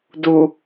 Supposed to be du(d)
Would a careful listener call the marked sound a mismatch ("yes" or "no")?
yes